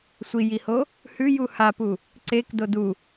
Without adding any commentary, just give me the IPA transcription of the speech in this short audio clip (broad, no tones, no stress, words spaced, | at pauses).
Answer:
sʷijiho | hʉju hapu | ǀek dodu